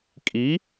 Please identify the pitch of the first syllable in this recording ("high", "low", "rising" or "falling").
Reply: rising